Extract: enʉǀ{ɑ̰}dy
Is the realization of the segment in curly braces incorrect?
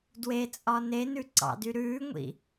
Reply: no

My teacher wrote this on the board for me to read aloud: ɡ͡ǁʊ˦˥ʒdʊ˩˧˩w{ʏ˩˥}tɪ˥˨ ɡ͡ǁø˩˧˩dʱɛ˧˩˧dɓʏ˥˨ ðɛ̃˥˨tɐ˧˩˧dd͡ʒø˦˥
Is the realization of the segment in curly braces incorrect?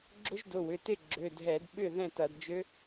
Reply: yes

